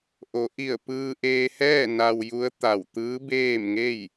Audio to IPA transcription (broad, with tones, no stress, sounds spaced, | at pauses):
ʔ o˩˧ ʔ i˧˩ ə̯ p ɯː˧ ʔ eː˧ h ɛː˥˨ n a˧ w j u˧˥ ə̯ t̪ a˧˩ w t̪ ɯː˧˥ b eː˥˨ m ŋ e˥˨ j